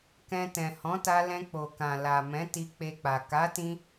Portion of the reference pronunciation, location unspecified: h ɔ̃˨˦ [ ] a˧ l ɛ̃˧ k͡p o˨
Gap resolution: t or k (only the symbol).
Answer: t